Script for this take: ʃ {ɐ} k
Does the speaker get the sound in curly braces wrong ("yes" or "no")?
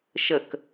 yes